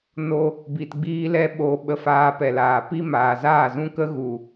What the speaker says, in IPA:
n o˦ | b i˧ t ɡ͡b iː˦ l ɛ˦ ɓ o˧ ɓ ə˧ f aː˧ p ɛ˨ l aː˨ p i˦ m aː˨ z aː˦˨ z ũ˦ k ə˦ ɣ u˨

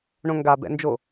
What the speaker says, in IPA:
ɳ õ ŋ ɡ a b ɛ̰ n d͡ʒ o

